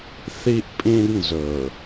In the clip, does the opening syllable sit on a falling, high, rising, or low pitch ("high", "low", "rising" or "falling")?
high